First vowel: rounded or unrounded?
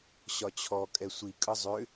rounded